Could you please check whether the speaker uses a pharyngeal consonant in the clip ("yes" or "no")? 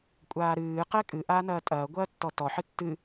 yes